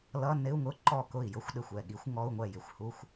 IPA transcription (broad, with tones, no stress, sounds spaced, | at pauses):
l ʌ˧˥˧ n ɪ˧˥˧ u̯ ŋ ʊ˧˥˧ ǃ ɔ˥˩ k ʊ˥˩ i̯ j ʊ˥ xʷ ɗ ɪ˥˩ xʷ ɛ˥˩ ɠ i˧˥ xʷ ŋ ɔ˧˥˧ u̯ ŋʷ ɛ˥˩ j ɪ˧˥ xʷ h u˧˥˧ xʷ